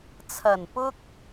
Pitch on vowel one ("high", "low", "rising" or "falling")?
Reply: low